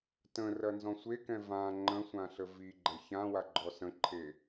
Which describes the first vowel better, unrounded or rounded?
unrounded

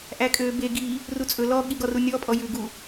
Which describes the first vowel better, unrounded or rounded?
unrounded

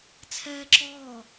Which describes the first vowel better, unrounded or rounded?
unrounded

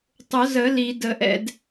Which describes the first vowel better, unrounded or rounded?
rounded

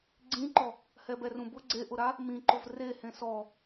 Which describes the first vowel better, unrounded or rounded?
unrounded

